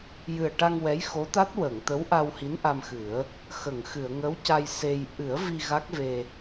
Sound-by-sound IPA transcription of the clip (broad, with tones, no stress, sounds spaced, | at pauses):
j ɨ˨˩ ə̯ ʈ a˧ ŋ w ɛ˧˥ j x o˧˥ t̪ a˦˥ t̚ w ə˨˩˨ ŋ t̪ ə˧˥ w ʔ a˧ w h i˧˥ n ʔ a˧ m x ɨ˨˩˦ ə̯ | x ə˨˩˨ ŋ x ɨ˨˩˨ ə̯ ŋ ə˧˥ w c a˧ j s e˧ j ʔ ɨ˨˩˦ ə̯ v i˧ ɣ a˦˥ k̚ v e˧